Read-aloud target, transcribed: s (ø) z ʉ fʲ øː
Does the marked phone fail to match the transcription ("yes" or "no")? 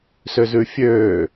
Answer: no